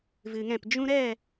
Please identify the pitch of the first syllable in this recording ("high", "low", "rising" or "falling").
low